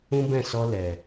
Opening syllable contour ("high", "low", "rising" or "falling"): high